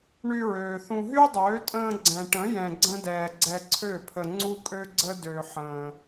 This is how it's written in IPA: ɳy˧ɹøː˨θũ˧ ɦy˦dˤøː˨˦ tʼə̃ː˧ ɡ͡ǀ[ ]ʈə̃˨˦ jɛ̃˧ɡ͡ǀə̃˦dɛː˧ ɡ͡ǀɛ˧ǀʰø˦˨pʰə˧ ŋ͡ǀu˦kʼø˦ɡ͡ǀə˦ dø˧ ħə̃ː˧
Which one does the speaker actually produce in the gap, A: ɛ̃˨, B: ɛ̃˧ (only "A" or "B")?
A